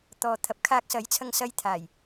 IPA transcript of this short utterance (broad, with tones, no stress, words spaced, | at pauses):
t̪ɔː˨t̪ʰɐ˨p̚ kʰaː˧k̚sɐ˨˥jt͡sʰɐ˧ŋsɐ˧j t̪ʰaː˨˩j